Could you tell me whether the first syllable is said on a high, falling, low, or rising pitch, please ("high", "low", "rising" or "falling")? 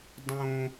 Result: high